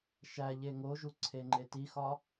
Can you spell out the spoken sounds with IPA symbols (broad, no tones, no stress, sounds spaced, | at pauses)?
ʃ æ ʎ e ŋ o ʒ u ǀʰ e ŋ͡ǃ e t i x ɒ